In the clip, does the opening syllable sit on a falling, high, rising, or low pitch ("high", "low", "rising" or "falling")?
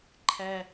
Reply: high